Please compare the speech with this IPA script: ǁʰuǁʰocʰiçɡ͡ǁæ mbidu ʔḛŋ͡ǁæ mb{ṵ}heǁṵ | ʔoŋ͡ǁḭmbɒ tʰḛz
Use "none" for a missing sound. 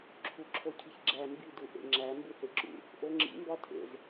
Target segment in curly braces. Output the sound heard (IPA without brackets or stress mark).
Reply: u